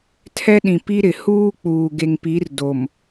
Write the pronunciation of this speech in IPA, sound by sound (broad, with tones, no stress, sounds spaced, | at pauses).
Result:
tʰ ɛ˦ ɗ ĩ˨ p i˦ ɾ ɪ˨ h uː˦ k͡p uː˨ ɡ e˨ ŋ p i˨˦ r d o˨ m